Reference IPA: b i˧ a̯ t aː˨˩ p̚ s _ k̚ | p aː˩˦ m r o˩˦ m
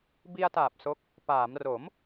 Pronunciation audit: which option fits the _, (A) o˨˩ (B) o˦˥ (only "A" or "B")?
B